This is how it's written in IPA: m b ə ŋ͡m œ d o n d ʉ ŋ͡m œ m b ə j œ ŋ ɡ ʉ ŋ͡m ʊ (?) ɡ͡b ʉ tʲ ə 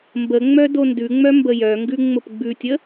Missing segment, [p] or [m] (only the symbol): p